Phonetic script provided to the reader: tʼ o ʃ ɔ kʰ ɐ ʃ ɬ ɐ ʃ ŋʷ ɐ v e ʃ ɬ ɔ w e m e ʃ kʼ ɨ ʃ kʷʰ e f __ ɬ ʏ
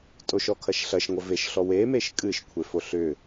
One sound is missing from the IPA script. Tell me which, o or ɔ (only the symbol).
o